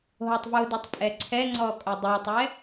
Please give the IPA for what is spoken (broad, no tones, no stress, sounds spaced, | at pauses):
ɦ o tˤ v u d ɛ tˤ pʼ ɛ ǀʰ ɛ ŋ͡ǀ ɔ kʼ o dˤ u ɐ̯ tˤ ɛ